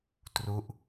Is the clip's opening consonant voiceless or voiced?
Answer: voiceless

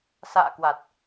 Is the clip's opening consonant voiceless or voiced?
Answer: voiceless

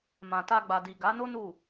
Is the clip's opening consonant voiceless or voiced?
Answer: voiced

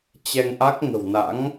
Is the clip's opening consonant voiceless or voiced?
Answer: voiceless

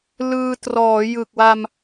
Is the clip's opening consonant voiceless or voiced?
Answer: voiced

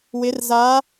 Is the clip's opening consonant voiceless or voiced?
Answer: voiced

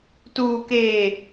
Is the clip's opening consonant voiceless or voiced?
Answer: voiceless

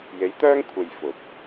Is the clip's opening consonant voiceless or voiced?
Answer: voiced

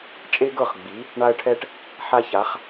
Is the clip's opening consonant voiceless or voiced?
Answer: voiceless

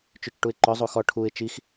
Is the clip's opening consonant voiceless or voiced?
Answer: voiceless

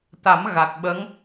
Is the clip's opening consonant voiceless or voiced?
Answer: voiceless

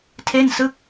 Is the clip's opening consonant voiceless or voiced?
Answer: voiceless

